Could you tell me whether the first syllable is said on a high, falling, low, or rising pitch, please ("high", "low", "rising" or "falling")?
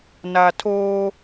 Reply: low